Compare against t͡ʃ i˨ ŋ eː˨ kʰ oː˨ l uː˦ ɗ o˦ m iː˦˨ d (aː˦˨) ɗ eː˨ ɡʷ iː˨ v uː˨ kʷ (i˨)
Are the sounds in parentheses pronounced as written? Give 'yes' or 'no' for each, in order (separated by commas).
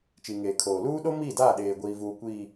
yes, no